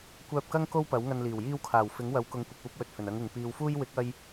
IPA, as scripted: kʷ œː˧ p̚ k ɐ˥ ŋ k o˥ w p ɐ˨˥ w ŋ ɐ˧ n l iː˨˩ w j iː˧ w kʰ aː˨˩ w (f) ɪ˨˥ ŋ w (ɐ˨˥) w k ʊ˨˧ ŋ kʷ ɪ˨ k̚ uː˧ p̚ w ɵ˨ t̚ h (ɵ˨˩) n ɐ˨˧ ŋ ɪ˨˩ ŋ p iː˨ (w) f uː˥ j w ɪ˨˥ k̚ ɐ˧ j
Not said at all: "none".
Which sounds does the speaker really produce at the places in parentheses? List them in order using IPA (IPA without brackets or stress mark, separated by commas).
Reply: f, ɐ˨˥, ɵ˨˩, w